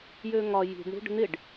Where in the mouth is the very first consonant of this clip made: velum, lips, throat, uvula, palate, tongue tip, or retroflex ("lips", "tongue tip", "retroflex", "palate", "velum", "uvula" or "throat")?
palate